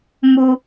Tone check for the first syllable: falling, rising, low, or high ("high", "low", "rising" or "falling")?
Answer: high